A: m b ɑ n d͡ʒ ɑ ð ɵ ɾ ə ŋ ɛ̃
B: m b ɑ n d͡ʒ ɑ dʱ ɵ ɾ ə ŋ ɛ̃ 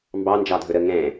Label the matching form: B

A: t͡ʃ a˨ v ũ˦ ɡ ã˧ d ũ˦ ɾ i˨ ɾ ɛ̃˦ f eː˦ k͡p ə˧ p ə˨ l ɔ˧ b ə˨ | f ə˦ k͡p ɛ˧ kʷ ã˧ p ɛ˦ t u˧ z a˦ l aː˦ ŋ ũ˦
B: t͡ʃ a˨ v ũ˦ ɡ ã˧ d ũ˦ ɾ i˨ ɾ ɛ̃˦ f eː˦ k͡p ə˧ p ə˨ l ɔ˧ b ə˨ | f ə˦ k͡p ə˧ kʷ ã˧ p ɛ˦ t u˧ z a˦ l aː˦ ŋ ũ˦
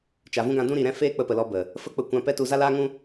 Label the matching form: B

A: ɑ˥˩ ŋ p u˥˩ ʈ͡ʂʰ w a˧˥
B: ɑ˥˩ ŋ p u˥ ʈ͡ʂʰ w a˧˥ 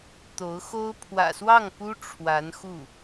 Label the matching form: B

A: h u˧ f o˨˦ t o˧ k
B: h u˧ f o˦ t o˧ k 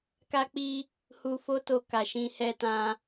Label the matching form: B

